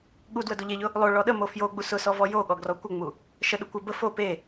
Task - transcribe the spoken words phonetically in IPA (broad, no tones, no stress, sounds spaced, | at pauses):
ɠ u d w ə d o ʎ e ʎ ʊ | lˠ o ɭ ɔ ɗ ə m o f j o ɡ͡b u s ʊ s ɔ v ɔ j o ɠ ɔ ɡ r ɔ kʷ ə ŋ͡m u | ʃ ə ɗ ʊ kʷ ə b ə f o p e